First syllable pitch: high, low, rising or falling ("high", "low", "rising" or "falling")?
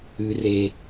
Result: low